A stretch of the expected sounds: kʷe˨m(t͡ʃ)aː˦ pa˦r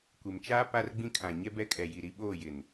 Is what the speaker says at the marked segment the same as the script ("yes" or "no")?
yes